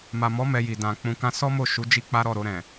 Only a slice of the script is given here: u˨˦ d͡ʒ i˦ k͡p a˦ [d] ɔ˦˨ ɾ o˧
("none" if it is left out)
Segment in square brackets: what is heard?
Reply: ɾ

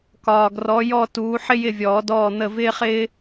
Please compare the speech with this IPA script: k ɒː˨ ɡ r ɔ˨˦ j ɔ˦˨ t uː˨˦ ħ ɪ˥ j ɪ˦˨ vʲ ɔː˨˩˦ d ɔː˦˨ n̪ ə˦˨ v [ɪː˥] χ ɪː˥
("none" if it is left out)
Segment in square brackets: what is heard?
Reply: ɪː˥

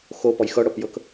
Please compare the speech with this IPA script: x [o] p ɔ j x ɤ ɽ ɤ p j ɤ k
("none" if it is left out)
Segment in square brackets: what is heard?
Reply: o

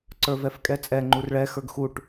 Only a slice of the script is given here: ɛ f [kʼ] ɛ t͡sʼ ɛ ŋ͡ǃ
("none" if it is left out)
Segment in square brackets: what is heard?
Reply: kʼ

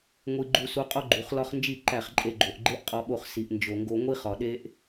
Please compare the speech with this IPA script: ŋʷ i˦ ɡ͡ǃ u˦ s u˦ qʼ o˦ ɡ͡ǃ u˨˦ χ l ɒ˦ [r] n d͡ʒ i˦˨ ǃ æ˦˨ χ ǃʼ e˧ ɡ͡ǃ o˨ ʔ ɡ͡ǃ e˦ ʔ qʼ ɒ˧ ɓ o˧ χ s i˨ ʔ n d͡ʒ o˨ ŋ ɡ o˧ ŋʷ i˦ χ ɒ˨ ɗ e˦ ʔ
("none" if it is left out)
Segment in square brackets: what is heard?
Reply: χ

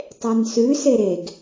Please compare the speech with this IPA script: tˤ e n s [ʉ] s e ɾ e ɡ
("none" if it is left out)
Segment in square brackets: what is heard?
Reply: ʉ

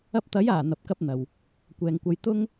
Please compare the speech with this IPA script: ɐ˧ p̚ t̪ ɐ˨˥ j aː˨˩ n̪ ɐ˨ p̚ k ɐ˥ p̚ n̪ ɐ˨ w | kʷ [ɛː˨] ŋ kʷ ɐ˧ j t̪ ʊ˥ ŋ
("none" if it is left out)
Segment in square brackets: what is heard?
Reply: ɛː˨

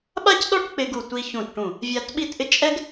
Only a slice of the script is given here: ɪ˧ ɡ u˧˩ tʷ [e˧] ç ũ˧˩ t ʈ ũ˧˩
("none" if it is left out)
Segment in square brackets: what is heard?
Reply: i˧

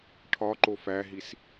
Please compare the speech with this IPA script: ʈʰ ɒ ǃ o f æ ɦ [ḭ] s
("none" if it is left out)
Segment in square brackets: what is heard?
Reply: i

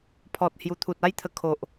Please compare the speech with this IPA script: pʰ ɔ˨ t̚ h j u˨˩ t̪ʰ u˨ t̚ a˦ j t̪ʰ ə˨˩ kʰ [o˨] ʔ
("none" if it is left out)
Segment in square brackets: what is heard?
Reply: o˨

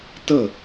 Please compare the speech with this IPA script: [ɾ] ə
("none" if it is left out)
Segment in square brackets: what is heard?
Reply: t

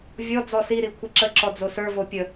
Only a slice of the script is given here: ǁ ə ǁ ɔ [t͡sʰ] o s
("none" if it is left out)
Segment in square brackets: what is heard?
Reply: d͡z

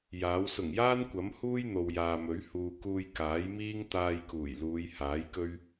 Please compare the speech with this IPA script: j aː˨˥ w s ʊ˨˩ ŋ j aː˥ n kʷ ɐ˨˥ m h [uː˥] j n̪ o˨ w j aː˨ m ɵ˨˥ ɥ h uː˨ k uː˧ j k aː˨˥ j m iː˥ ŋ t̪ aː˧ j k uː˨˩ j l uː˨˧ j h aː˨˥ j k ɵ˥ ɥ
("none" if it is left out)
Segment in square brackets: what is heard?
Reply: uː˥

